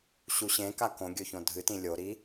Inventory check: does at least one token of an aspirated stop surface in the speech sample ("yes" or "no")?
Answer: no